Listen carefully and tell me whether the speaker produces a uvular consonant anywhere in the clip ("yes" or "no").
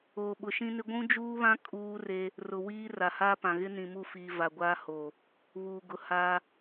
no